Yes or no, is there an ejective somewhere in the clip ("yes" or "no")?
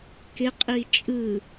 yes